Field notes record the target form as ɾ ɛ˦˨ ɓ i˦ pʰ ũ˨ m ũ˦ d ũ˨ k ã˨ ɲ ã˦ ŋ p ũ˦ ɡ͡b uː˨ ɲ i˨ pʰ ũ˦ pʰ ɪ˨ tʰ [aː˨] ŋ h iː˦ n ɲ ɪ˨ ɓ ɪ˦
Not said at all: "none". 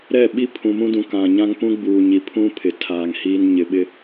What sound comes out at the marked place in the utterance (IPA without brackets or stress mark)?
aː˨